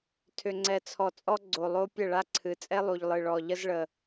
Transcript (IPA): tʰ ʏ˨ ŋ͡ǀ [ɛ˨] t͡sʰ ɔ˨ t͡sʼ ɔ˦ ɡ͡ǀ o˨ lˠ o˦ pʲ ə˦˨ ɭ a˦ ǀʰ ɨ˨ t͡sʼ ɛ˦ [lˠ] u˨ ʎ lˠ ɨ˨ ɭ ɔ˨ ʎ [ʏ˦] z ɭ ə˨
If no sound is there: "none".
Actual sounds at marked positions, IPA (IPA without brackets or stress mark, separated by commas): ɛ˨, lˠ, ə˦